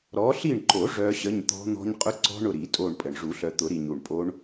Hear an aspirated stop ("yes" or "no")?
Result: no